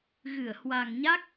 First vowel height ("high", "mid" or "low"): high